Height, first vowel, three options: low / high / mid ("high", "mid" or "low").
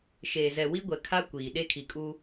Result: mid